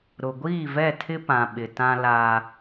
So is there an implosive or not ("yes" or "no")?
yes